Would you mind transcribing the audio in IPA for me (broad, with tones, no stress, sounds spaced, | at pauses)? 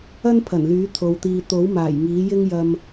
ɐ˥ n pʰ ɐ˨˩ n l yː˨˥ t̪ʰ o˧ w t̪ iː˧ t̪ o˨˥ w m aː˨˩ j ŋ iː˨˥ j ɪ˥ ŋ j ɐ˧ m